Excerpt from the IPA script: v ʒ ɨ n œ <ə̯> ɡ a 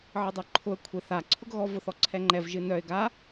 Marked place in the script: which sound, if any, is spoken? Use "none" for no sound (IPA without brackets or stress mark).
ɪ̯